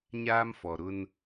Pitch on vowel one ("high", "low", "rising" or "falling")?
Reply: high